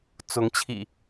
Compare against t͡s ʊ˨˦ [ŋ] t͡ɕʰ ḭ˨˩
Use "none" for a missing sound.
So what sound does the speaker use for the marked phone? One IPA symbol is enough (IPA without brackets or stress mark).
ŋ